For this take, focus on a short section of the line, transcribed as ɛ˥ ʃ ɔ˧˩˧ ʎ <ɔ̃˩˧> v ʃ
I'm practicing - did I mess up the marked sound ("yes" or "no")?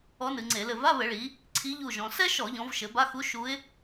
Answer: no